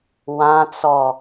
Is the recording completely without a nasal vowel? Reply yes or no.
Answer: no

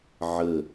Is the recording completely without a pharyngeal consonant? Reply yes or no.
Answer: no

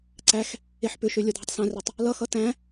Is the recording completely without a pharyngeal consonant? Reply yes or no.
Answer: no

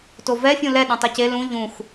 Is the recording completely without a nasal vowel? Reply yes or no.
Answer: no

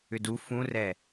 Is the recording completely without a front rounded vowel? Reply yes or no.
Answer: no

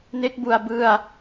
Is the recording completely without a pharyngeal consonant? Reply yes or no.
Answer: yes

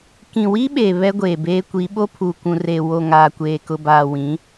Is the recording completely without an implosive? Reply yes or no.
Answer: no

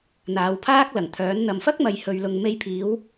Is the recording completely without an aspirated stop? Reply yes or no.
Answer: no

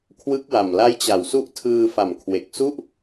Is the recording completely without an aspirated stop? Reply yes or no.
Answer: no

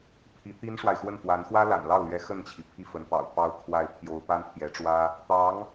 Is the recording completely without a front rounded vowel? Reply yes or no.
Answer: yes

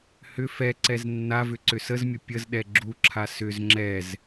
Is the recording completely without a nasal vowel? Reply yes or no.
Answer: yes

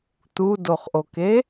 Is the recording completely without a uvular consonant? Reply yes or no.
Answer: no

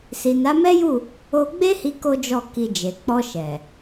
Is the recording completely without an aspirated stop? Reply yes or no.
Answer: yes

